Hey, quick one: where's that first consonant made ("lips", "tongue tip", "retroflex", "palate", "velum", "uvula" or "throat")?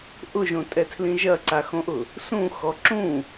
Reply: throat